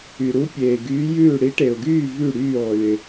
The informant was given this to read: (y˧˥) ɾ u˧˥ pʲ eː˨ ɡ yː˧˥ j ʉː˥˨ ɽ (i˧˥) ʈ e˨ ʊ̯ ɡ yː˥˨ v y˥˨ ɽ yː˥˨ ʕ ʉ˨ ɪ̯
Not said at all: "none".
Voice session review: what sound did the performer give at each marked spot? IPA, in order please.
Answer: y˨, i˧˥

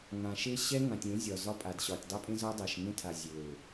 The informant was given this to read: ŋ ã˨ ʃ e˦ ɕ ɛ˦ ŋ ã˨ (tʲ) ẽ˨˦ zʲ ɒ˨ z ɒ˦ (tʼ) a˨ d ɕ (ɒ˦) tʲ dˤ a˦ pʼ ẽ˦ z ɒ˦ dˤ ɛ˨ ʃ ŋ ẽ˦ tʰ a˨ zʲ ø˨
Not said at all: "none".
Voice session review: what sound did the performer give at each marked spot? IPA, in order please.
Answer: tʲ, pʼ, ɒ˨

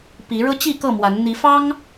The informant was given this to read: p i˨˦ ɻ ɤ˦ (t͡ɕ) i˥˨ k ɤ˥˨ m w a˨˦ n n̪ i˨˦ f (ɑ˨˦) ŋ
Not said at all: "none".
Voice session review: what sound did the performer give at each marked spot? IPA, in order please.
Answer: t͡ɕ, ɑ˦

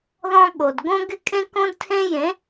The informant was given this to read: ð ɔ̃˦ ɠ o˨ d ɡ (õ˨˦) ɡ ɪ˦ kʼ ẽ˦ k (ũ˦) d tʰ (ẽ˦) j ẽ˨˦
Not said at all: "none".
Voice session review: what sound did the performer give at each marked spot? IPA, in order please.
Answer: õ˦, õ˦, ẽ˦

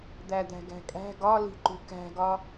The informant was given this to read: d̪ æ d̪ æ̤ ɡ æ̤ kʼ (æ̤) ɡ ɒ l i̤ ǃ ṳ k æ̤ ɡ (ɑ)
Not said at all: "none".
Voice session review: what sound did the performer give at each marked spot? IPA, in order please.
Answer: æ̤, ɒ

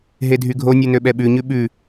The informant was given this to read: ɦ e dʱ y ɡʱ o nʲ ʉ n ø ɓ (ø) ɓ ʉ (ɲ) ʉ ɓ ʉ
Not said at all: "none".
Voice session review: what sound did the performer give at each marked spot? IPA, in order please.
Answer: ɛ, ɲ

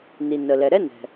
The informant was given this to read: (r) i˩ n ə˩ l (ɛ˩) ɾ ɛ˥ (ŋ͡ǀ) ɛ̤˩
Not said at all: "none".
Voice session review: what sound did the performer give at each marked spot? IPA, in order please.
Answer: n, ɛ˩, n

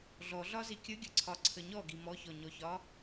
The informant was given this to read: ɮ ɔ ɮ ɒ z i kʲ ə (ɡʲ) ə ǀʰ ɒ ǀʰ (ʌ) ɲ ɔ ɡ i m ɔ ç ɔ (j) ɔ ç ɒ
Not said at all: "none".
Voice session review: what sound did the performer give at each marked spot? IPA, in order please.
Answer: ɡʲ, ə, ɲ

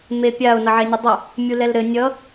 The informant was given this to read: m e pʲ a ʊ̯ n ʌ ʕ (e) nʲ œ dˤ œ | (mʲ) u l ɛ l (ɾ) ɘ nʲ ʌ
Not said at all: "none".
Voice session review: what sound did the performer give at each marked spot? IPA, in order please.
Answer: e, mʲ, ɾ

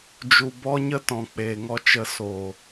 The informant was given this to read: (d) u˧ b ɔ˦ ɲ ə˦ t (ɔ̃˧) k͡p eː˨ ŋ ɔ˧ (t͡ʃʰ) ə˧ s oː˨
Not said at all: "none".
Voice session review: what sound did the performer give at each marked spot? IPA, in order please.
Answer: d͡ʒ, ɔ̃˨, t͡ʃ

